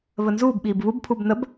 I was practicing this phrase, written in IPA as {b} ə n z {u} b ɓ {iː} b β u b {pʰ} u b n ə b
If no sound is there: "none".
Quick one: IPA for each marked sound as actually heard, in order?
β, uː, iː, pʰ

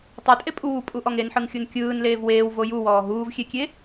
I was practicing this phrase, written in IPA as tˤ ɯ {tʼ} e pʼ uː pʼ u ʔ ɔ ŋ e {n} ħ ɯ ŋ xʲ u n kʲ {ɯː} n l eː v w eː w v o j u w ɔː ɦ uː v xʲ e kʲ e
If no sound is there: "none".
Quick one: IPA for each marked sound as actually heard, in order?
tʼ, n, ɯː

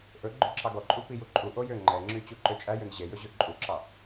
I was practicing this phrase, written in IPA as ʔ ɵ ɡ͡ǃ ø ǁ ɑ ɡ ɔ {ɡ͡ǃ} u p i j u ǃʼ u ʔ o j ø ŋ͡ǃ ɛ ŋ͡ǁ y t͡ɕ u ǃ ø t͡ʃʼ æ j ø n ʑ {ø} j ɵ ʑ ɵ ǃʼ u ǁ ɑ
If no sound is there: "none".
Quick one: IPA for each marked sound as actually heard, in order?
ǃʼ, e

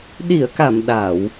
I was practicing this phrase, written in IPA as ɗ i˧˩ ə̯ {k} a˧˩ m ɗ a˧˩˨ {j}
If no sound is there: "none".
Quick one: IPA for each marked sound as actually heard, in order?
k, w

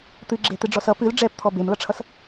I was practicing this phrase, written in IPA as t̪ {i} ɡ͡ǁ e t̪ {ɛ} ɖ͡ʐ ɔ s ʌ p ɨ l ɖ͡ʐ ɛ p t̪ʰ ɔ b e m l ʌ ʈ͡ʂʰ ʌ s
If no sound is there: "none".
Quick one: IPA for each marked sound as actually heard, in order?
ɨ, ɨ

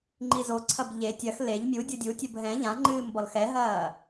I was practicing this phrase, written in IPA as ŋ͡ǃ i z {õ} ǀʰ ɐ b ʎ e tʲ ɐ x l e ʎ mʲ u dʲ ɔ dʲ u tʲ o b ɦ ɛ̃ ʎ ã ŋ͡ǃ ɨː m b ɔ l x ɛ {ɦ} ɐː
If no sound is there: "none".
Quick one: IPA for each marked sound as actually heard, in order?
o, ɦ

